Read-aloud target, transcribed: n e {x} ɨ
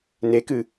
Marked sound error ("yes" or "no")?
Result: yes